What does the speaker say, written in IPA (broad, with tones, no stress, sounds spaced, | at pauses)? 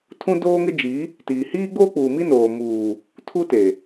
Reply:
tʰ ũ˦ d oː˦ ŋ ɪ˦ d͡ʒ i˨˦ | t iː˨ h iː˦ ɡ͡b oː˦ k͡p uː˨ m i˦ n oː˨ m uː˨ | tʰ u˦ t e˨